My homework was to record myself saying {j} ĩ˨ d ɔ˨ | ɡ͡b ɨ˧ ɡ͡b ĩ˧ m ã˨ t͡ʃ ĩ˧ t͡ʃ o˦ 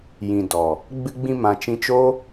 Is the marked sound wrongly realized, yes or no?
no